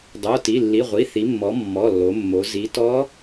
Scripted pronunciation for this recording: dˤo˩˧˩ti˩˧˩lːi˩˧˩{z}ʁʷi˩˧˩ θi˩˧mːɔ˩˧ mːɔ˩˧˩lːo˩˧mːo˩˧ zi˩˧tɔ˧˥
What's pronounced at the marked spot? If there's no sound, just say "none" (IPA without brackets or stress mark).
none